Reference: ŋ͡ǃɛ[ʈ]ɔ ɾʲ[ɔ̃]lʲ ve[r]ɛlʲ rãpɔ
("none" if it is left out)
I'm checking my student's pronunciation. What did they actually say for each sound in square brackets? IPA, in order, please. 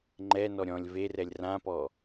n, ɔ̃, r

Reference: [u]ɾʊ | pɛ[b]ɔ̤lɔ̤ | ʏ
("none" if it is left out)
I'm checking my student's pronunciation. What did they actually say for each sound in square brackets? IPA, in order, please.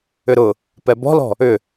ʏ, b

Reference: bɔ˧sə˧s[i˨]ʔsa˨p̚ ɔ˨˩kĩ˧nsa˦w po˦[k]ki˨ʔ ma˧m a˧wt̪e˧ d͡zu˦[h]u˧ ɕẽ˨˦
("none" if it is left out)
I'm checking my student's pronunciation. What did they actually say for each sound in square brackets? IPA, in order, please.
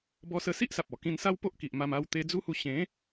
i˦, ʔ, h

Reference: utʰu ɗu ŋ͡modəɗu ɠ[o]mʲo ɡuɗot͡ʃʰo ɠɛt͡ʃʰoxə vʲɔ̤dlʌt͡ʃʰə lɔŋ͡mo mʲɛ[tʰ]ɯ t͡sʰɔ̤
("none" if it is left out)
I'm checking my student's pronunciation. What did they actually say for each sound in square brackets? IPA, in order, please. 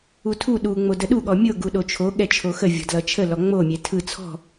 ɔ, tʰ

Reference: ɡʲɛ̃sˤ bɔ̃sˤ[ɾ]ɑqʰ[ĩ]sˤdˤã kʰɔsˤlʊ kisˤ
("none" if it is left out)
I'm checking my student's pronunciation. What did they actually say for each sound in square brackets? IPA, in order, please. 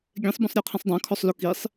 ɾʲ, ĩ

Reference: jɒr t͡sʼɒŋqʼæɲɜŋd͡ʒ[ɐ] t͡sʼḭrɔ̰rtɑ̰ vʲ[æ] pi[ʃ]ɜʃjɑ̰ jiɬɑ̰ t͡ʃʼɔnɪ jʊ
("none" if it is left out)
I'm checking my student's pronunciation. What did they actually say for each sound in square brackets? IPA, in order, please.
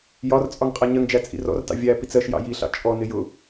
æ, æ, t͡s

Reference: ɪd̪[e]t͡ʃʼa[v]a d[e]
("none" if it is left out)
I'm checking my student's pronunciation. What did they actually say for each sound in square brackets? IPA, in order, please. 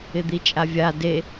i, vʲ, e

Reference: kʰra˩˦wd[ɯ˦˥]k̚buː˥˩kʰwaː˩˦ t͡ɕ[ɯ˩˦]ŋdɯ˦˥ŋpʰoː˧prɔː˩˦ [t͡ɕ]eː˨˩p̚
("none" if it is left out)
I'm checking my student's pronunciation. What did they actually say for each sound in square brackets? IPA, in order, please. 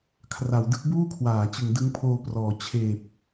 ɯ˦˥, ɯ˩˦, t͡ɕʰ

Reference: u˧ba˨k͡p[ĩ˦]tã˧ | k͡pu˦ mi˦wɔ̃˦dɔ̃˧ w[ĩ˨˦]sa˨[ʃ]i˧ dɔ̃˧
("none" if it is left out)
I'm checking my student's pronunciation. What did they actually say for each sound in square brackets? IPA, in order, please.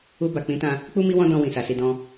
ĩ˨˦, ĩ˨, s

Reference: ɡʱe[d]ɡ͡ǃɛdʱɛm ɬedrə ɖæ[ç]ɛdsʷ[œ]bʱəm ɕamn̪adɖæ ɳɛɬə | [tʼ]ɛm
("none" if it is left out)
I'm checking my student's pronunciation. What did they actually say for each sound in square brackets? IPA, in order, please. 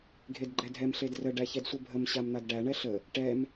d, ç, ə, ʈ

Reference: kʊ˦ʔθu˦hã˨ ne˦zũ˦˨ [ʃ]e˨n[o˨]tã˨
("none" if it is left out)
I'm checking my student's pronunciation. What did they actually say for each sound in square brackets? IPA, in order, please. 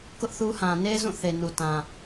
θ, u˨

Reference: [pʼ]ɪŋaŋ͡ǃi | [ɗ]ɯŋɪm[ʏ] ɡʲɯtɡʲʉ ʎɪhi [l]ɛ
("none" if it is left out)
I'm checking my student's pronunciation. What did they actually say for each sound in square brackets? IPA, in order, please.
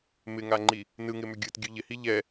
m, n, ʏ, ʎ

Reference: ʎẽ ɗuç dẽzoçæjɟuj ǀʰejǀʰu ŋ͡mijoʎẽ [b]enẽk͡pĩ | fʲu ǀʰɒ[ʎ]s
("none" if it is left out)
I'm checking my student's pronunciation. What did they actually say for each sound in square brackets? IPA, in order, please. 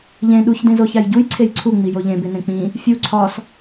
b, none

